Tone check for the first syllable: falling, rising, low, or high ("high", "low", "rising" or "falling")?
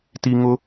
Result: high